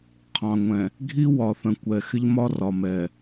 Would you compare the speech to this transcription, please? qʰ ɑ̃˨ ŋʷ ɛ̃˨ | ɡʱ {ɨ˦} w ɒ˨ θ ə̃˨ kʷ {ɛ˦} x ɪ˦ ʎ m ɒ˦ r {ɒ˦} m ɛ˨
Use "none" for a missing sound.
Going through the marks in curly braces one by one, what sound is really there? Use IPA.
i˦, ɛ˨, ɒ˨

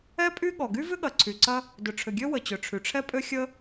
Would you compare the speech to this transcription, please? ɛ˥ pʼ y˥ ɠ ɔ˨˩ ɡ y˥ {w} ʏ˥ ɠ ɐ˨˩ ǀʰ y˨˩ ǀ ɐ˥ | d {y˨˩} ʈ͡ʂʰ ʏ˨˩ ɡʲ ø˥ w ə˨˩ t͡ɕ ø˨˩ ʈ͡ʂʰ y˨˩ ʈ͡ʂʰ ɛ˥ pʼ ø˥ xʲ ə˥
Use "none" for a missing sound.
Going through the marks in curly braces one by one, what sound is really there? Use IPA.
v, ʏ˨˩

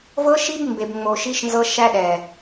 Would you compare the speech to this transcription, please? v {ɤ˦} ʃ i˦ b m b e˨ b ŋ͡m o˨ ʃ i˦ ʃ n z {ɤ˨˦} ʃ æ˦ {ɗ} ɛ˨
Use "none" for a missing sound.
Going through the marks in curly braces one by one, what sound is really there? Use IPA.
ɤ˦, ɤ˦, ɗ

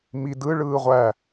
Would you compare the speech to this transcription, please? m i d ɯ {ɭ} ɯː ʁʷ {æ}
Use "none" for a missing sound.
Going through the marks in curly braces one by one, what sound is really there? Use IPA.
ɭ, æ

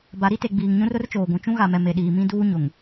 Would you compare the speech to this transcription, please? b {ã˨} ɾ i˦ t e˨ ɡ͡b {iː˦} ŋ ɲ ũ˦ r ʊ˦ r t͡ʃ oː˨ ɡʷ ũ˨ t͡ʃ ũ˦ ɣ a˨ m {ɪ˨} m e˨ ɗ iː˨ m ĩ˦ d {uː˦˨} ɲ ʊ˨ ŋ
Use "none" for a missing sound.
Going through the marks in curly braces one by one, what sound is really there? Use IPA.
a˨, iː˨, ɛ˨, uː˦

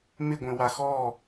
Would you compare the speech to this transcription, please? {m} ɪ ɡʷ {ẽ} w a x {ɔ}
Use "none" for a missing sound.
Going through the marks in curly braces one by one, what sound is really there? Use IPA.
m, ẽ, ɔ

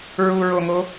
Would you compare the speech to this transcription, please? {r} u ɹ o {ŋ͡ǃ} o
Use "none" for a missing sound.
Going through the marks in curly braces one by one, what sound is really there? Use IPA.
ɹ, ŋ

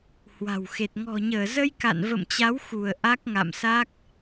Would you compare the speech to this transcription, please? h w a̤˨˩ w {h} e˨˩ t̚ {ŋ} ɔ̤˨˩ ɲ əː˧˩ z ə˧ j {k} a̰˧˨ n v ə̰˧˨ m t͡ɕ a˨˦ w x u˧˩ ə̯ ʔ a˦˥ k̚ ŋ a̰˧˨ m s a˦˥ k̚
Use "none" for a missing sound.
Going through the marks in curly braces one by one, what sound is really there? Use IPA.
x, ŋ, k

